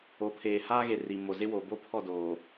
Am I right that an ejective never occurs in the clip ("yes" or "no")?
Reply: yes